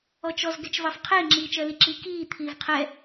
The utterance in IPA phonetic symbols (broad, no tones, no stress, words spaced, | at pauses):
ɔt͡ʃɔz ɡɛt͡ʃvɑfqʰɪː ŋ͡ǁiːt͡ʃɜliǁi kiː t̪ʰiːvqʰɛ